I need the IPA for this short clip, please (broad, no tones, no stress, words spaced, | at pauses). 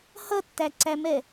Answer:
hʌtːæǀæmɛ